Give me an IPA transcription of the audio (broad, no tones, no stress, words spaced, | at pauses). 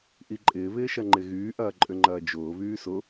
ʔiǃʼɪːβɪːʃɐ ŋ͡ǃɪɣyː ʔɐːǃʼʏŋ͡ǃɐːd͡ʒʊː βyːsʊ